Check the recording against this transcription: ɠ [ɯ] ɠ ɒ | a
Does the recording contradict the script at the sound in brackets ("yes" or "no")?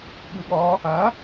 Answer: no